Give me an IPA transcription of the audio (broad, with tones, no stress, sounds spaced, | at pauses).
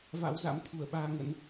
v a̰˧˥ w z a̰˧˥ m t̪ʰ u˧˩ ə̯ ɓ aː˧ ŋ ə̰˧˥ n